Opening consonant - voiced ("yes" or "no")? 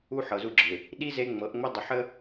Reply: no